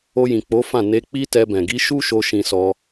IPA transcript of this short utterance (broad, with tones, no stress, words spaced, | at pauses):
o˧jĩ˨k͡po˨˦fã˦˨ ne˧ k͡pi˦tɛ˧bɛ̃˨ ɡi˨˦ʃu˦ʃo˧ ʃĩ˧sɔ˧